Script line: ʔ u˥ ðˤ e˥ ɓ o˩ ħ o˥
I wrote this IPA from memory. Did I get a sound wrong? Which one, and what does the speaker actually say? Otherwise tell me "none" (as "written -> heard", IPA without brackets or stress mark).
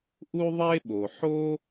none